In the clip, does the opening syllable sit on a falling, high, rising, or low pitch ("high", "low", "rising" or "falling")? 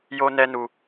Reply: high